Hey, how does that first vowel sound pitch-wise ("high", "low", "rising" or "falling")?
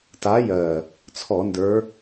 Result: rising